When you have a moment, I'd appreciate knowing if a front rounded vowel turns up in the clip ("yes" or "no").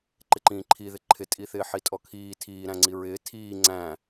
no